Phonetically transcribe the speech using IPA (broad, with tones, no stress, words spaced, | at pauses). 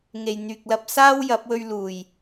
ŋe˨jn̪yː˨k̚ lɐ˧p̚ saː˥wjɐ˨˥p̚ wɵ˧ɥluː˨˩j